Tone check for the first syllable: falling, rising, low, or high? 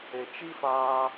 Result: low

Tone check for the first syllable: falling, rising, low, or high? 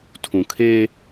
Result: low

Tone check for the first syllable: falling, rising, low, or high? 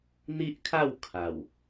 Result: high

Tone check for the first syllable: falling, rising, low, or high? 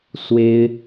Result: high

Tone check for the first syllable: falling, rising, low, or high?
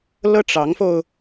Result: high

